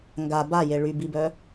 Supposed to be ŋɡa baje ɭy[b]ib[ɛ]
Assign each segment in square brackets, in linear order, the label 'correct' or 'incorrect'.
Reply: correct, incorrect

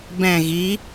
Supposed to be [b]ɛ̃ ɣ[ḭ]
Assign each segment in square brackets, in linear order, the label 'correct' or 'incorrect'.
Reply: correct, incorrect

